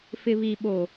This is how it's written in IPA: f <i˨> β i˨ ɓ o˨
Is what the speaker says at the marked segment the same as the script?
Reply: no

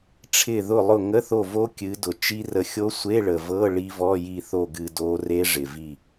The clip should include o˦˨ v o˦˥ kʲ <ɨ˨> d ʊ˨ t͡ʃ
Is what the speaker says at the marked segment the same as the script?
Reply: no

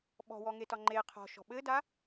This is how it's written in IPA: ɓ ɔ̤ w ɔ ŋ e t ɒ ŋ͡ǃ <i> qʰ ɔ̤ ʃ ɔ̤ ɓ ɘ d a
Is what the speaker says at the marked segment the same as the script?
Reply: no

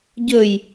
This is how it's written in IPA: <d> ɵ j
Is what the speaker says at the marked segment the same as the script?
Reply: no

